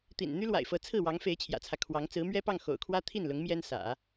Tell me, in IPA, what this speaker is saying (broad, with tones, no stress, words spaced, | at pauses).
t̪ḭ˨˩n n̪y˥lwa̰˨˩ɪ̯fɤ˧˥ t͡sʰɹ̩˥˩wɑ˧˥ŋ fe˧˥ɪ̯t͡ɕʰjä̰˨˩t͡sʰä˦ kʰwɑ˧˥ŋ t͡sɹ̩˧˥mɥɛ˥pɑ˥˩ŋ xo̰˨˩ʊ̯kʰwä˥ t̪ʰi˥˩nlʊ˧˥ŋ mjɛ˥nsä̰˨˩˦